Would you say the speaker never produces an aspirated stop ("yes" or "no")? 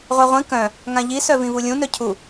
no